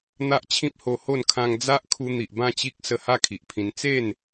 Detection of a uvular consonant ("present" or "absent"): absent